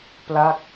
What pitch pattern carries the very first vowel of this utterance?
falling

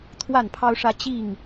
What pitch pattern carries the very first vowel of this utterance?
falling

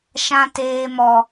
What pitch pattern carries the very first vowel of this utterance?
high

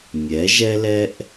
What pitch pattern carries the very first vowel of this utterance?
rising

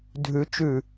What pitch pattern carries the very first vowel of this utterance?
rising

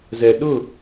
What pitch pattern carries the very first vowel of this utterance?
low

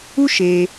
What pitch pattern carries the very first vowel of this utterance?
high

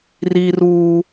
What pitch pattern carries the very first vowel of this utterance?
high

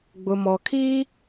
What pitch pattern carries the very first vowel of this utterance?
low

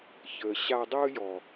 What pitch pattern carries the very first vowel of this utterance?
low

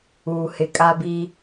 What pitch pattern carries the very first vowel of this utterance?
low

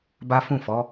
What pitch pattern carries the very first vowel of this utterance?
high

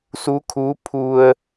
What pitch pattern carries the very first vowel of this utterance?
rising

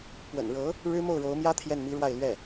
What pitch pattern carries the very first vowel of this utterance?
low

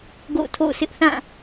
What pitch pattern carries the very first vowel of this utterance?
falling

